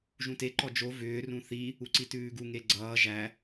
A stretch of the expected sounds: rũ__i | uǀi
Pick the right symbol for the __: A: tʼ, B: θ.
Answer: B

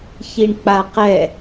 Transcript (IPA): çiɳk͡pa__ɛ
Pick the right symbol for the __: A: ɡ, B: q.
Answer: B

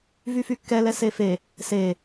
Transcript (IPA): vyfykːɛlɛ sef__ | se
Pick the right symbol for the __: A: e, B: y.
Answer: A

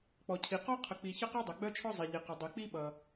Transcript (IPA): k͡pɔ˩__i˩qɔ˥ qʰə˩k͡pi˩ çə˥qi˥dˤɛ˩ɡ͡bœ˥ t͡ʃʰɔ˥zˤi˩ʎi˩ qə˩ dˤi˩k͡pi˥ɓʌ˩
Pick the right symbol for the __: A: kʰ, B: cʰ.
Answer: B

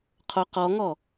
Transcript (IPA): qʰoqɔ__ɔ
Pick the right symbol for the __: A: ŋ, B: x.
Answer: A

